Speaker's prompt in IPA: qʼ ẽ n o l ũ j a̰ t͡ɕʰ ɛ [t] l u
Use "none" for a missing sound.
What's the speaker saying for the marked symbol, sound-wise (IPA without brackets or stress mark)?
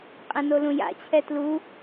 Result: t